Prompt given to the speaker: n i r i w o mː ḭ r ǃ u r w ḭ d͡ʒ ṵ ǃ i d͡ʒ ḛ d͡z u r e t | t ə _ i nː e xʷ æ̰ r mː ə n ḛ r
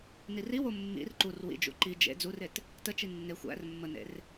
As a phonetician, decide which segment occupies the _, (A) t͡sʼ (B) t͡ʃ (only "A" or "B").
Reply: B